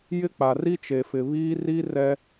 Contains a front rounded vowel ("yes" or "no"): no